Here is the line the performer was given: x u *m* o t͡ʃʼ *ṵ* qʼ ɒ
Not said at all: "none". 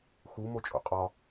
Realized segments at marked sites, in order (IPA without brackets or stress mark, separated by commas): m, ṵ